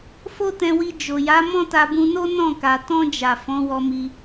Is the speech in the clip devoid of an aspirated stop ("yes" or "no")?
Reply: yes